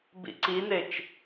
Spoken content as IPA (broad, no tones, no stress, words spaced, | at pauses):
bḭǀinet͡ʃ